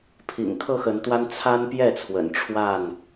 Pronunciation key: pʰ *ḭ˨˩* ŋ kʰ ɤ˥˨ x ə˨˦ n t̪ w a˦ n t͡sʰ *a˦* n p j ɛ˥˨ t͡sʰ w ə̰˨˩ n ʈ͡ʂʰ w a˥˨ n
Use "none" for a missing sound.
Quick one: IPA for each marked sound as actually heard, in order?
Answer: ḭ˨˩, a˦

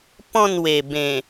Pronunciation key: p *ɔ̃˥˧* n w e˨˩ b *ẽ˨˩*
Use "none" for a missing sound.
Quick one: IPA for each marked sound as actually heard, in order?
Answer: ɔ̃˥˧, ẽ˨˩

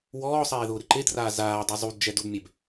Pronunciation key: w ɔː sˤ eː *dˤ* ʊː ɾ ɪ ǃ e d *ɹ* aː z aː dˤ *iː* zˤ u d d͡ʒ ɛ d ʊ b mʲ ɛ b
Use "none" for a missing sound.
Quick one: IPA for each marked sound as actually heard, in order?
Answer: ð, r, i

